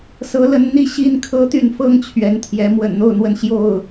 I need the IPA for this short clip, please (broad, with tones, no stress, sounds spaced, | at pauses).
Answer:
s ɤ˨˦ l ə˨˦ n n̪ i˦ ɕ i˦ n kʰ ɤ˦ t̪ y˥˨ n f ɤ˦ ŋ t͡ɕʰ ɥ ɛ˨˦ n t̪ʰ j ɛ˨˦ m w ə̰˨˩ n n̪ o˥˨ ʊ̯ n̪ w ə˥˨ n ɕ j o˥˨ ʊ̯